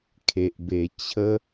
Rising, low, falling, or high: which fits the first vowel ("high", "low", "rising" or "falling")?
low